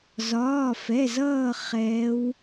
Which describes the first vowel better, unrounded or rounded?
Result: rounded